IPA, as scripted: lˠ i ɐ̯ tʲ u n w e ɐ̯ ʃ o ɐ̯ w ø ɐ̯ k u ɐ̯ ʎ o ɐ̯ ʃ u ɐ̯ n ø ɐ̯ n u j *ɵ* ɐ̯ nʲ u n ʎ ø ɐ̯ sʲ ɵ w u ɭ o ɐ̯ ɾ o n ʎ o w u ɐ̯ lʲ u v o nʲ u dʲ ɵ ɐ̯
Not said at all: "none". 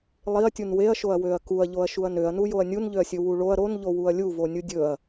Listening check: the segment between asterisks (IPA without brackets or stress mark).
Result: o